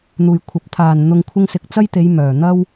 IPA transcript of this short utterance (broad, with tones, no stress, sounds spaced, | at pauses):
n̪ uː˨˩ j kʷʰ ɐ˨ p̚ t̪ʰ aː˨˩ n n̪ ʊ˨ ŋ kʷʰ ɪ˧ ŋ s ɪ˨ k̚ t͡s ɐ˥ j t̪ e˨˧ j m œː˨˩ n̪ ɐ˥ w